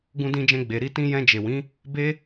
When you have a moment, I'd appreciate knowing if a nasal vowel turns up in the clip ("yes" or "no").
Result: yes